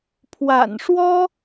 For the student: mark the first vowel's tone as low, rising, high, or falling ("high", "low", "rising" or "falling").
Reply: low